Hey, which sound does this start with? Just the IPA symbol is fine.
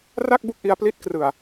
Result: r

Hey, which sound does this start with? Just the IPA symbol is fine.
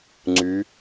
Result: ŋ͡ǀ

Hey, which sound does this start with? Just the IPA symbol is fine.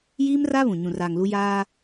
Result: j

